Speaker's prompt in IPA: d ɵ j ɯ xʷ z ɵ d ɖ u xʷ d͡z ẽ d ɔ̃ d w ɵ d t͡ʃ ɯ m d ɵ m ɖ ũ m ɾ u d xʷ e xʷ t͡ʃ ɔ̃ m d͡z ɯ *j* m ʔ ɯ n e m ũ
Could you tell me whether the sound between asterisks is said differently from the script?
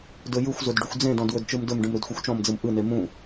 yes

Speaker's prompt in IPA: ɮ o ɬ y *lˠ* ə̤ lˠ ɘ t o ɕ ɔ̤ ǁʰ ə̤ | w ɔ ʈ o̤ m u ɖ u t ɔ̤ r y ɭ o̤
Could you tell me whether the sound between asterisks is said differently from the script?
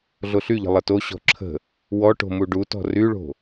yes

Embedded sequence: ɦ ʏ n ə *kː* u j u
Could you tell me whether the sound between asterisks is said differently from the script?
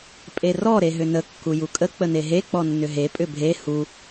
no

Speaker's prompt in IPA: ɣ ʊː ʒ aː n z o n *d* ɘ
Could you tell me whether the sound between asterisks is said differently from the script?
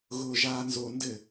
no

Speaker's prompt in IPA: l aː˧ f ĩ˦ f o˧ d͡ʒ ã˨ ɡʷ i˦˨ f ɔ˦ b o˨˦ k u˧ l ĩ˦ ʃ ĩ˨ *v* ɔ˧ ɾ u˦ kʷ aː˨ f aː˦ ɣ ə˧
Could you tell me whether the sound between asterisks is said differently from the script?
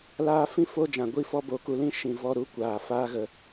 no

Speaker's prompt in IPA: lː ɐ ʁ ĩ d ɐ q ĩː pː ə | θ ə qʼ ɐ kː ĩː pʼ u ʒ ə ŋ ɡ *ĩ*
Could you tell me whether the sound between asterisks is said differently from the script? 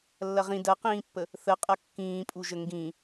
no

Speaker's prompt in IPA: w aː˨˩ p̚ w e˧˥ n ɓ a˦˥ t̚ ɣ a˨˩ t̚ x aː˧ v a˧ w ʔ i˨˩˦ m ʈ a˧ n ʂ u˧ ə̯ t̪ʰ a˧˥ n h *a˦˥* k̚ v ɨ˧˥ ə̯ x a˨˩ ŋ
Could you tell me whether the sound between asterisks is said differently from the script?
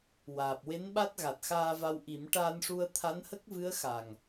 yes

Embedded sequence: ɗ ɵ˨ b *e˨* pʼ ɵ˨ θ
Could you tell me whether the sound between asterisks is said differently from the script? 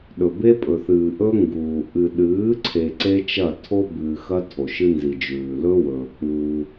yes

